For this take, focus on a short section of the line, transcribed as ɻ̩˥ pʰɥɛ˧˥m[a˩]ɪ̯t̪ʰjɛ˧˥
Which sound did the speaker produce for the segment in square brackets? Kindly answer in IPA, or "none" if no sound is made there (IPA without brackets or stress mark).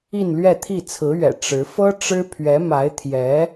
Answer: a˧˥